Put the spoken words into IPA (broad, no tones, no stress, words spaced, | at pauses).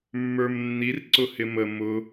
mːə˞mnːirǀʊ hɪmə mʊ